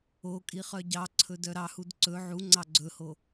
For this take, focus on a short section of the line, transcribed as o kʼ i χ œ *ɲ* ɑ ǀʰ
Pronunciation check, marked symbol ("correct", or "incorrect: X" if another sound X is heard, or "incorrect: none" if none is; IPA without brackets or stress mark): incorrect: ɟ